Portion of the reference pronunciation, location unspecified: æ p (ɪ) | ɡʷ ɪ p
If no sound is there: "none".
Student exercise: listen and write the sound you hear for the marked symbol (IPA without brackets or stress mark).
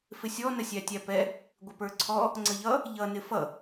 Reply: ɛ